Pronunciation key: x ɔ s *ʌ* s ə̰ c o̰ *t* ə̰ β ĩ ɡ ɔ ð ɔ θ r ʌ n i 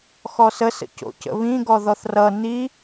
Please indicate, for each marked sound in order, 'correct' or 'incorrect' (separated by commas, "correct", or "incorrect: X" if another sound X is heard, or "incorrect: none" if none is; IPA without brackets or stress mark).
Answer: incorrect: ə, incorrect: c